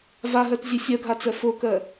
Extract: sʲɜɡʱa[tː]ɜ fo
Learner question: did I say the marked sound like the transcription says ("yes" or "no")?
no